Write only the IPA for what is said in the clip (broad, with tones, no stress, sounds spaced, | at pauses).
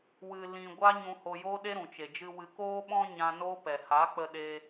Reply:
w ɨ˧ l ĩ˧ ɡʷ a˦ ɲ ũ˧ h o˧ j oː˦ ɗ e˦ ɾ ũ˨ t͡ʃ e˨ d͡ʒ ɨ˧ w ɨ˨ k oː˧ ɓ ɔ̃˧ ɲ ã˧ n oː˦ p ɛ˨ h a˨˦ k͡p ə˧ ɗ eː˧